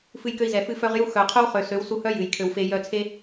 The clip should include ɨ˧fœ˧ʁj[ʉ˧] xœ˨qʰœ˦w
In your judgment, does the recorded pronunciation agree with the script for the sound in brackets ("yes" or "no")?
no